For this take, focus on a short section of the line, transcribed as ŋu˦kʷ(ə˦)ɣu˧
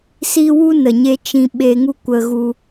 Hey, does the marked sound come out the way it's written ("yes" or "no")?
no